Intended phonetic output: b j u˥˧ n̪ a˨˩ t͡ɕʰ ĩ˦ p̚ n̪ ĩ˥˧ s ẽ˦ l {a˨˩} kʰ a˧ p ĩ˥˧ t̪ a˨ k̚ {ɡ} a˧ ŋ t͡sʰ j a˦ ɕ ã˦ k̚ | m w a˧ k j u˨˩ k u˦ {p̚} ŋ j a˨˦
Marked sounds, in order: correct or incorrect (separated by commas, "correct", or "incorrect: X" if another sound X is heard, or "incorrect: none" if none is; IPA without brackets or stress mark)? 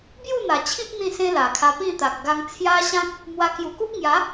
correct, correct, correct